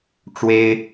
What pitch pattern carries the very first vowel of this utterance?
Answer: high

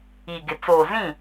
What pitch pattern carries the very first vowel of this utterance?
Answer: low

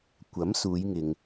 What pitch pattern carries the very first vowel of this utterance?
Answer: rising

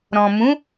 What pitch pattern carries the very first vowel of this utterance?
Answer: low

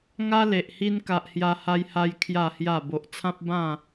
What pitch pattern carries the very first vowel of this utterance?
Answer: high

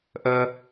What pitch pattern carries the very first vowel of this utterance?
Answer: high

